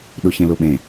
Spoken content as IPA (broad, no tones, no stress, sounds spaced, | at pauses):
ɗ u ç ẽ l u ɓ ẽ